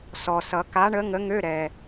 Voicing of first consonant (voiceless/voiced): voiceless